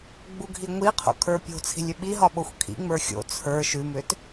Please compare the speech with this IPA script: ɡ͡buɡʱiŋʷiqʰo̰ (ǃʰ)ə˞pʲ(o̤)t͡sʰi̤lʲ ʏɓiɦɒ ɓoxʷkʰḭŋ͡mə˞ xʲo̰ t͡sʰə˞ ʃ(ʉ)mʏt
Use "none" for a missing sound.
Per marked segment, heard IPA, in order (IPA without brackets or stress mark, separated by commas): kʰ, o̤, ʉ